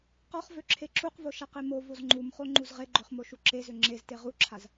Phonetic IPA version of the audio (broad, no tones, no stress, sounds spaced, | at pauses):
q ɔ χ v ø ǁʰ e ǁ u q v o ʃ a q e m o v o z ŋ͡ǃ u m χ o ŋ͡ǃ u z ʁ e ɡ͡ǃ ø χ m o ʃ u ǁ e z ø ŋ͡ǁ e z t e ʁ u ǁʰ a z